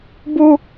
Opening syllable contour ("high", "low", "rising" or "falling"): high